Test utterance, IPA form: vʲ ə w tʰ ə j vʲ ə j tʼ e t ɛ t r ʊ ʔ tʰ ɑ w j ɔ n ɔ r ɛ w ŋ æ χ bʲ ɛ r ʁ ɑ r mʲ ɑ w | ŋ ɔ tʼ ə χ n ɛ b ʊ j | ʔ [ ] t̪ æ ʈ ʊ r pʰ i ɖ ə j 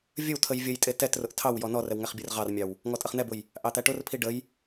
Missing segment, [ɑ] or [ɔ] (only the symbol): ɑ